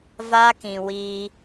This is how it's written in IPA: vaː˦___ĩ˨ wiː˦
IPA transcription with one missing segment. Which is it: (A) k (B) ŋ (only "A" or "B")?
A